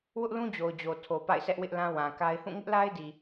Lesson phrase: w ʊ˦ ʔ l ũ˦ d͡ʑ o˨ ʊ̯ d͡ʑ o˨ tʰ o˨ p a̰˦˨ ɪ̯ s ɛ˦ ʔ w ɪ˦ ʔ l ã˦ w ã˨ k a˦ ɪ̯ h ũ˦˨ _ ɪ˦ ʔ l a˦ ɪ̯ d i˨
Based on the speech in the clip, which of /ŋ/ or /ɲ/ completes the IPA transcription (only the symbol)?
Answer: ŋ